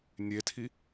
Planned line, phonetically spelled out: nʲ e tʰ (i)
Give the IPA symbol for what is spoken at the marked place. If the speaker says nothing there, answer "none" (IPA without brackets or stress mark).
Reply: i